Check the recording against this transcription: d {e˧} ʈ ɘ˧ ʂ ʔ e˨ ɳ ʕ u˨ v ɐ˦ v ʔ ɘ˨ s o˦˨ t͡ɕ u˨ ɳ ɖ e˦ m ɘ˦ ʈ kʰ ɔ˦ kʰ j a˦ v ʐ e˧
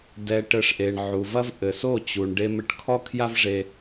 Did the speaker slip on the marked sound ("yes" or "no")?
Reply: yes